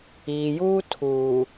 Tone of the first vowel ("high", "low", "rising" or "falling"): low